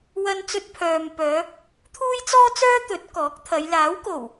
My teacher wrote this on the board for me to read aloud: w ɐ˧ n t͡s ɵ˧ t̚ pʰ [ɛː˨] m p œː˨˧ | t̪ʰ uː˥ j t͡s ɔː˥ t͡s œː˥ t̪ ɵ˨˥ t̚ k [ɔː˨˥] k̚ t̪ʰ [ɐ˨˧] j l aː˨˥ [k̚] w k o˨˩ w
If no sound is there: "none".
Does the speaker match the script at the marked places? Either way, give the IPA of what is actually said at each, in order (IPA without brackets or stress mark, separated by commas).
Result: œː˨, ɔː˨˥, ɐ˨˧, none